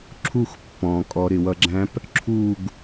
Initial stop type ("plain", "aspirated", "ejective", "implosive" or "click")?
click